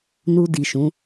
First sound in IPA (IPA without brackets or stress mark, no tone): n